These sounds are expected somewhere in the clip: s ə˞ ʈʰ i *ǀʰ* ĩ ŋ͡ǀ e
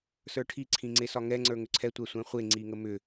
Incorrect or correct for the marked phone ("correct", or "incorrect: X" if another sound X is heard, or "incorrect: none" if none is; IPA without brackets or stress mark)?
correct